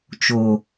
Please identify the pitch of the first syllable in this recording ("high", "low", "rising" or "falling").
low